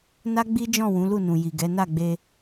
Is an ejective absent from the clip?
yes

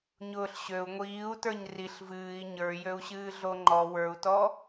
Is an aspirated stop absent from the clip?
yes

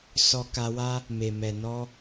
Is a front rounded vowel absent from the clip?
yes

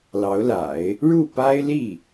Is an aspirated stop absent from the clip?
yes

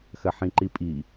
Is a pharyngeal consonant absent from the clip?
no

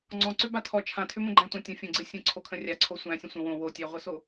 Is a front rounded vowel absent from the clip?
no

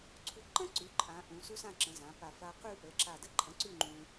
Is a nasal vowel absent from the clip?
no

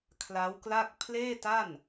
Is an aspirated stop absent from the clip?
no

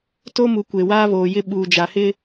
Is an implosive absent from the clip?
no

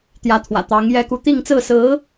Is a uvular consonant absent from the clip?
yes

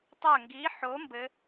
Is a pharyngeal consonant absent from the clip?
no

